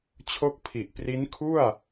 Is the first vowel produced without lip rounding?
no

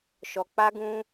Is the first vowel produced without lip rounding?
no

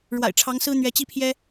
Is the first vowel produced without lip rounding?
yes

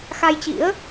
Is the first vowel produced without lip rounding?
yes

